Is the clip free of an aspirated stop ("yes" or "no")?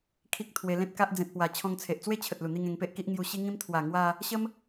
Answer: no